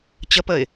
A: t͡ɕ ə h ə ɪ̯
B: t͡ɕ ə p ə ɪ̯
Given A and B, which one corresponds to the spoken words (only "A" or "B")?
B